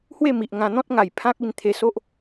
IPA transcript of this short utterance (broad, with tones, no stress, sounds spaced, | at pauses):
h w e˥˧ m i˨ ʔ ŋ ã˧ n̪ ɔ̃˦ t̚ ŋ a˨˩ j pʰ ã˦ k̚ i˧ n t̪ʰ e˧ s o˦ ʔ